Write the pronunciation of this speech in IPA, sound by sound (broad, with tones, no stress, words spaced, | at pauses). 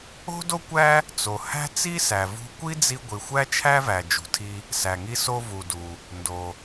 o̤˥do˥kʷæ˥ | t͡so˩ hæ̤˥ t͡si˥sæ˩vṳ˧ kʷi˥d͡zi˧ ɡʷi˩xʷæ˥t͡ʃʰæ˥væ˩ d͡ʒṳ˩tʰi˧ | sæ˩ŋi˧so˧ vu˩du˩ | ndo˩